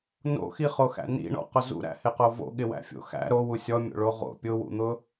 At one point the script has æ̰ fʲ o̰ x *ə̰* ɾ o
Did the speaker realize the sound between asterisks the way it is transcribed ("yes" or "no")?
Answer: no